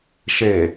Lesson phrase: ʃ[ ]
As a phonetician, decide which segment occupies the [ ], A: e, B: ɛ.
A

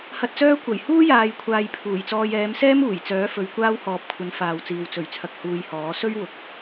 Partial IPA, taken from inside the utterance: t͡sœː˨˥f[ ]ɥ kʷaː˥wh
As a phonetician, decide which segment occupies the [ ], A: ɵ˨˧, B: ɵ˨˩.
A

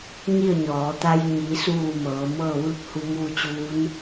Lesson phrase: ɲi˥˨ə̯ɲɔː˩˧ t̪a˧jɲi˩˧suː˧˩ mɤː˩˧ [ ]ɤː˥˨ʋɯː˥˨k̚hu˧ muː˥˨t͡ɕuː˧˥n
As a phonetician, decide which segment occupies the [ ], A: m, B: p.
A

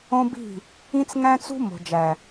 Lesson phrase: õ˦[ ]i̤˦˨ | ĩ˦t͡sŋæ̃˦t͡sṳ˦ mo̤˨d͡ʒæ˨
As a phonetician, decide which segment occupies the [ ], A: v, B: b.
B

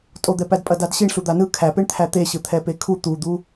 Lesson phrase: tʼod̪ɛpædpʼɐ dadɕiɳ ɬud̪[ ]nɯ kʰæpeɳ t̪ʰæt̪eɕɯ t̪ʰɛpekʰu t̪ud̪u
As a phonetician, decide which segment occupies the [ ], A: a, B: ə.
A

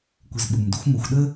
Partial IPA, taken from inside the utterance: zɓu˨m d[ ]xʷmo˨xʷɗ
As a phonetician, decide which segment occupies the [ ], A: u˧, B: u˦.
A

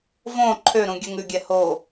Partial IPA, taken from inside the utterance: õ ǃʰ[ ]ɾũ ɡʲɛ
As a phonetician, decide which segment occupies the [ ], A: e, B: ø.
B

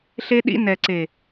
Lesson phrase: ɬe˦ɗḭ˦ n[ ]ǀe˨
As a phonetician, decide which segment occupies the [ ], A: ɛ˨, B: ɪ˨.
A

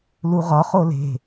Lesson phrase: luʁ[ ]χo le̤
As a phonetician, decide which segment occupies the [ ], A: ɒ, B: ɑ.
A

